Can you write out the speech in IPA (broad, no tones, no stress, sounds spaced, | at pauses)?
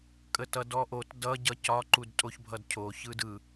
kʼ ə t ʌ d ɔ ʔ o t d ʌ ɟ ʌ c ɒ ǃ u d tʼ o ç bʱ ʌ d cʰ o ç ɯ d ɯ